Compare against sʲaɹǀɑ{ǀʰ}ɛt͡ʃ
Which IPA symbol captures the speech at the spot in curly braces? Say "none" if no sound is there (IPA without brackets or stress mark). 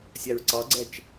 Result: ɡ͡ǀ